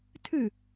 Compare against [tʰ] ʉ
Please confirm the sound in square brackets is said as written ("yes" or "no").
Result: yes